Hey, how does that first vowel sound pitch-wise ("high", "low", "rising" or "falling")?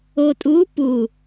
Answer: low